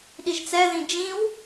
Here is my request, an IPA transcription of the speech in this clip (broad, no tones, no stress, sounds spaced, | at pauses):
ɗ i ʒ t͡s ɛ ð ĩ d͡ʒ ĩ w